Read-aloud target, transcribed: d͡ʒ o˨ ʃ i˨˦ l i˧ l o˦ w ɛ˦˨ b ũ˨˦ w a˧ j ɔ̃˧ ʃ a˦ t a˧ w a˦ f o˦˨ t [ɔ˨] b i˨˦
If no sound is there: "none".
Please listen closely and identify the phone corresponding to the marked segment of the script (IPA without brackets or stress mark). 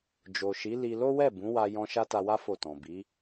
ɔ̃˨